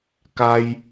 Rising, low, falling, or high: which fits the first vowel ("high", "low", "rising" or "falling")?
high